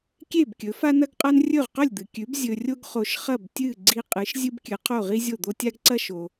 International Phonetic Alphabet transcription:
kʲ e˥˩ b kʲ ɵ˩˥ f a˥ n ɐ˥ ɡ qʼ a˥ n rʲ ɵ˥˩ ʁ q ɵ˥˩ lʲ d̪ ɨ˩ kʲ ʉ˩˥ b zʲ ɵ˧ rʲ o˥ ɡ χ o˧ ʃ χ ɐ˥˩ b tʲ ɨ˥˩ ɡ͡ǀ i˧ qʼ ɨ˩˥ ʃ zʲ ɨ˥ b kʲ ɨ˩˥ qʰ o˥˩ ʁ i˥ zʲ o˥˩ d̪ o˥ tʲ a˥ ɡ ǀ ɐ˥ ʃ o˩

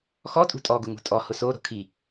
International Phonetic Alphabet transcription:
x ɔ tʼ ṳ tʼ ɔ ɡ ʊ ŋ ṳ tʼ ɔ h ʊ s o ɾ o̤ kʰ i

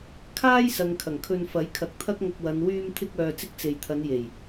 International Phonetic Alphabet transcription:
kʰ aː˥ j s ɐ˨ ŋ kʰ ɐ˨˩ ŋ kʰ ɵ˧ n f ɐ˨˥ j kʰ ɐ˨˥ k̚ t̪ʰ ɐ˥ k̚ ŋ ɐ˧ k̚ w ɐ˨˧ n w yː˧ m t̪ʰ ɪ˧ k̚ œː˧ t͡s ɪ˥ k̚ t͡s e˨ j t̪ʰ ɐ˨˧ n j e˨˩ j

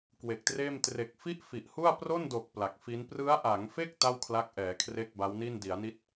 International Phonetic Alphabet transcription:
k w e˨˩ k̚ t r eː˥˩ m t r e˨˩ k̚ f i˥˩ ʔ f i˨˩ ʔ h u˥˩ a̯ p r o˥˩ n d oː˨˩ k̚ p l a˨˩ k̚ f i˦˥ n p r ɯ˦˥ a̯ ʔ a˩˦ ŋ f e˥˩ k̚ t a˥˩ w kʰ l a˦˥ k̚ ʔ ɛː˩˦ kʰ r e˥˩ k̚ b a˦˥ w n i˥˩ n d i˩˦ a̯ n i˦˥ t̚

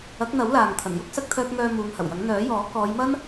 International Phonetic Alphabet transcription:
ɐ˨˥ k̚ n̪ ɐ˨˥ w l aː˨ ŋ t̪ʰ ɐ˨˩ n j ʊ˥ k̚ s ɐ˧ k̚ t̪ʰ œː˧ k̚ ŋ œː˧ m uː˨˧ ŋ h ɐ˨˩ w j ɐ˨˥ ŋ n̪ œː˨˥ j ɔː˨˥ k ɔː˨˧ j m ɐ˥ n

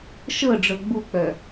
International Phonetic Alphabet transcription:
ʃ ɤ ɖ͡ʐ ɤ ɡ͡b u k͡p œ

